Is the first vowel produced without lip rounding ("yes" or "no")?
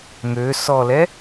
no